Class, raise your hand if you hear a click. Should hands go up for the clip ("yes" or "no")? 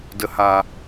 no